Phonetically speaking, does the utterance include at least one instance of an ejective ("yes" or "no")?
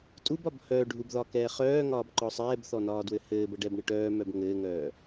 yes